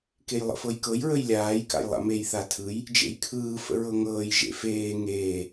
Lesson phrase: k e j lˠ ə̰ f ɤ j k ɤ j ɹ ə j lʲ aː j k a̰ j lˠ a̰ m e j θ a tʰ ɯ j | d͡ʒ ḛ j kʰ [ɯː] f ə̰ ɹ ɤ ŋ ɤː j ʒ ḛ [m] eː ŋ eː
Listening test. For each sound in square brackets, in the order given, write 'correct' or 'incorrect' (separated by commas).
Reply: correct, incorrect